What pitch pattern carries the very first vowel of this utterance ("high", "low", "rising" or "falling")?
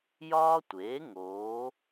high